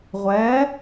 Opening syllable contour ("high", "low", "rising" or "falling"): rising